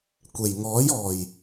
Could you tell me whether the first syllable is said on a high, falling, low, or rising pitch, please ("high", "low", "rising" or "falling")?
low